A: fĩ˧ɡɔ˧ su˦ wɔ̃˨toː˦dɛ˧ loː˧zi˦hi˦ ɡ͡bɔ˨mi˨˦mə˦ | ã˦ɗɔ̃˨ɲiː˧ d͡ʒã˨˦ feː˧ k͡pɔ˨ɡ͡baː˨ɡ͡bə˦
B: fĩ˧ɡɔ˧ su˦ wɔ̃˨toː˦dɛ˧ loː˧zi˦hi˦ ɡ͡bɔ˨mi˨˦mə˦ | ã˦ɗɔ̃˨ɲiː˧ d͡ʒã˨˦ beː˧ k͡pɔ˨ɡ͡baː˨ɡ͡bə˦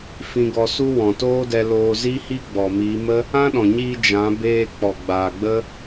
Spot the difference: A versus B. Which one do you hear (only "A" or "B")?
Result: B